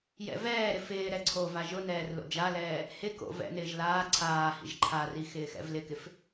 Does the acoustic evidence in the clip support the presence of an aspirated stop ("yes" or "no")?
yes